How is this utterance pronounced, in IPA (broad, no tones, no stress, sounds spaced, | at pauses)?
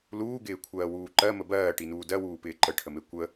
l uː ɡ ɪː kʷʰ ɜː w uː ǃ ɜ m ə b ɜː ʈ i n uː d ɜ w uː p ɪː ǃ ə ʈʰ ə m e kʷ ə